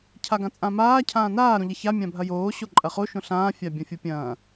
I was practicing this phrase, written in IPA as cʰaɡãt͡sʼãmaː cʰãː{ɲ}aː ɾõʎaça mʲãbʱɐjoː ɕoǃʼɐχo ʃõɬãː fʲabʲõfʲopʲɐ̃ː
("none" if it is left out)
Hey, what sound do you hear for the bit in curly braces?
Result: n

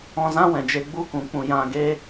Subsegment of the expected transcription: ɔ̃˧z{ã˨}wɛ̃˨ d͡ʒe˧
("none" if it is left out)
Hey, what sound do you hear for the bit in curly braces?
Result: ã˦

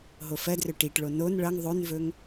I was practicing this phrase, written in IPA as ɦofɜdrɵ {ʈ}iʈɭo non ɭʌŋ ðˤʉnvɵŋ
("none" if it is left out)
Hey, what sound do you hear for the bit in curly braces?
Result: ʈ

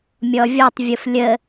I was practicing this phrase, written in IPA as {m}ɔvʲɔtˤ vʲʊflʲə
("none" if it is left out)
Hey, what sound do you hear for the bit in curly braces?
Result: mʲ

